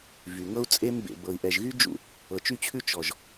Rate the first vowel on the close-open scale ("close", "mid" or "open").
close